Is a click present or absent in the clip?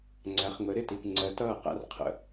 present